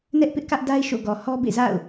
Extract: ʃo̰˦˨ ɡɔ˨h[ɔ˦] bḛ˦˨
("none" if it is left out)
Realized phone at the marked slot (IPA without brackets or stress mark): ɔ˦